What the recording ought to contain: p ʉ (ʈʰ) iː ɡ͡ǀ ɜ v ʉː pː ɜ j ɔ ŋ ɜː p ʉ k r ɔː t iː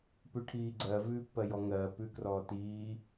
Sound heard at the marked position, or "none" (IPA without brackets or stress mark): ʈʰ